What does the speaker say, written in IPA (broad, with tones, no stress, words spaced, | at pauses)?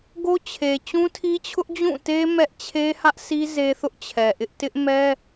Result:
ɡo˦t͡ɕʰe˨ t͡ɕũ˦tʰi˦t͡ɕʰʊ˦ʔ d͡ʑũ˦˨te˦ mɛ˦ʔ t͡ɕʰe˦hä˦ʔsi˦ ze˦θʊ˦ʔt͡ɕʰɛ˨ ʔɪ˦ʔ tɪ˦ʔmɛ˦